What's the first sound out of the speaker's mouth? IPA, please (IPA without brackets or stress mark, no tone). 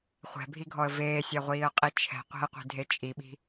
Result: χʷ